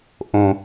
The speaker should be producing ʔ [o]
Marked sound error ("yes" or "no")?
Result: yes